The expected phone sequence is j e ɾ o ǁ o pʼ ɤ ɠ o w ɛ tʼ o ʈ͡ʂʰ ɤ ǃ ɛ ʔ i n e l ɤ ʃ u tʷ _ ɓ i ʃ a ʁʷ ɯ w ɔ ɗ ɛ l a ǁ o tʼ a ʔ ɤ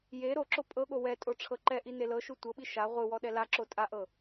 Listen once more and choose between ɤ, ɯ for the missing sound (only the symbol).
ɤ